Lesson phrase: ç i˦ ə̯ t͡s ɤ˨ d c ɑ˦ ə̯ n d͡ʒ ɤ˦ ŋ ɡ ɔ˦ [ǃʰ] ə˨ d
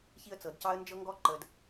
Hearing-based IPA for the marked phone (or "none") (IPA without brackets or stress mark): ǃ